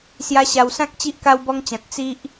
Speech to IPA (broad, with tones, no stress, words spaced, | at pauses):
sja˧ɕa˨˩wsã˦k̚ t͡ɕi˦ʔka˦wbɔ˦ŋt͡ɕã˨t̚ t͡si˦ʔ